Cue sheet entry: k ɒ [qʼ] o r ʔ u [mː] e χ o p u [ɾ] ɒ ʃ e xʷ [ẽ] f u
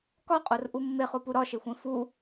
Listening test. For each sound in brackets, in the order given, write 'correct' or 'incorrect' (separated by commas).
correct, correct, correct, correct